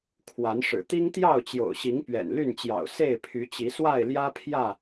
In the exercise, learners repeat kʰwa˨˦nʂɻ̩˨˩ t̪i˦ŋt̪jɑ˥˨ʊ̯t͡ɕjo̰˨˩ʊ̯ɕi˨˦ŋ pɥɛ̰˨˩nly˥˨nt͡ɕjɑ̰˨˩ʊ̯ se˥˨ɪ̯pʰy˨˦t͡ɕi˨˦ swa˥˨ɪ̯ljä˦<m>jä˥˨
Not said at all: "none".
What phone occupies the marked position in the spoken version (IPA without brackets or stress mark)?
pʰ